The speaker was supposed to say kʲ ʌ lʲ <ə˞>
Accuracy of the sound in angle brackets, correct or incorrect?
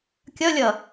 incorrect